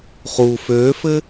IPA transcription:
χ u f ø f ɘ

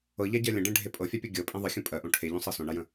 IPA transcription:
ɤ ʎ a ɟ ɜ lʲ ə̃ ɖ ẽ ɖʱ e pʼ ɤ fʲ a pʲ ɤ ɡʲ ɤ pʼ ẽ ðˤ ə xʲ ũ pʼ ɜ ʔ õ ʈʰ e ʎ ũ sˤ ɤ s õ ɳ a j ə̃

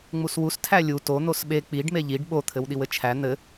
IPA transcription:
ŋ͡m u s w u s tʰ æ lʲ u t o n̪ o s ɓ e k͡p i ɖ m e ʎ i ɖ ɓ o t̪ʰ ɘ w ɗ i w ɘ t͡ʃʰ æ n̪ ɘ

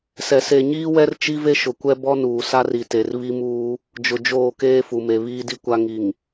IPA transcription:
s ɛ˨ s e˨ ɲ iː˦ w ɛ˦ r t͡ʃ i˦ v e˦ ʃ ʊ˨ kʷ ɛ˦ b ɔ˦ n uː˨ s a˦ r i˨ t e˨ r β i˦ m uː˦ | d͡ʒ ʊ˨ d͡ʒ oː˦˨ k eː˦ f u˨ m e˨ β iː˦ d i˦ kʷ a˦ ŋ i˨ ŋ

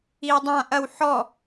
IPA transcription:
i w dˤ ã ʔ ɐ w ħ ɔ

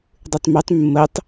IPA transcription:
dˤ ɨ tˤ m ʉ tˤ mː ə tˤ

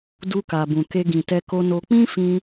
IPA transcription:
d u˧ k a˨ b ũ˨ k e˧ ɡ ĩ˨ t ɛ˧ k o˧ n o˧ k͡p ĩ˦ f ĩ˧

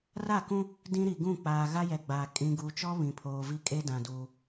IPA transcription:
r a˦˨ k ũ˦ | d ĩ˦ ɾ i˨ ɡ ũ˦˨ k͡p aː˨ ɣ a˦ j ɛ˨ ɡ͡b aː˨ kʼ ĩ˨ ɡ uː˨ t͡ʃ ɔ˦ β ĩ˨ pʰ oː˨ v i˦ kʼ e˦ d ã˨ d uː˨

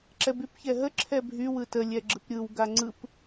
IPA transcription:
ǁ ɛ b y p ç ɛ ɦ ə ǁʰ ɛ bʱ y w ɯ t ə lʲ ɛ ɡ͡ǁ ɯ p ɾʲ ɯ w ɡ a ŋ͡ǀ ɯ p

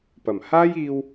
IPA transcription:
p ɐ˨˩ m h aː˥ j iː˧ w

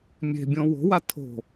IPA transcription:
mʲ e̤ bʲ õ w o̤ w a tʰ o̤

